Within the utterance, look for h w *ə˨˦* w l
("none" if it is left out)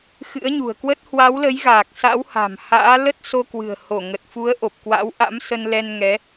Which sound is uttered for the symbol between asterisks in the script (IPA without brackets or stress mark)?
a˨˦